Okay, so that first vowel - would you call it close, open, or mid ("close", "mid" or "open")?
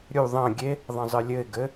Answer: close